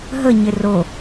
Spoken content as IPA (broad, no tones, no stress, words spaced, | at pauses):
ɦəɲɪ ro